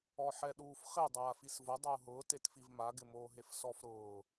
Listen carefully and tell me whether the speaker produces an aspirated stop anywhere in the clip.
no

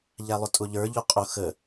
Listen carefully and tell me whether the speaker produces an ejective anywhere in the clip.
yes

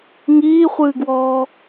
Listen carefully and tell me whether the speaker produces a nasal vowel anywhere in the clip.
no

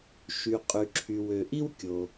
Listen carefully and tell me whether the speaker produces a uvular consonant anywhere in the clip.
yes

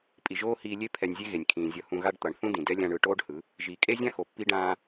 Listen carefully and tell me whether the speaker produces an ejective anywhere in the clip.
yes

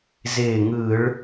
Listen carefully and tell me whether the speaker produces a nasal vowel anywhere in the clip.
no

